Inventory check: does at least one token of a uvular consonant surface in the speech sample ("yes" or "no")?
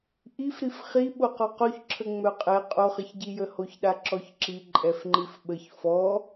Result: yes